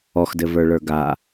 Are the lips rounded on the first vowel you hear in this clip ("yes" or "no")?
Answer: yes